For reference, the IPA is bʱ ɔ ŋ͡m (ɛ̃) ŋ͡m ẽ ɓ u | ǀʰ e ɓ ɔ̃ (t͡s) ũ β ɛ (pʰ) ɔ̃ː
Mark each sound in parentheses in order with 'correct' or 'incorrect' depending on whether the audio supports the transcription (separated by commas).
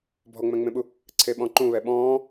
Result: correct, incorrect, incorrect